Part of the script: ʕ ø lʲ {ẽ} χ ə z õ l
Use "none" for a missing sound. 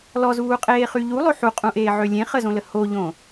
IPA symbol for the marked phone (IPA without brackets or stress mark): ẽ